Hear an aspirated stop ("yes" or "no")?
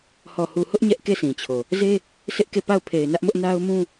yes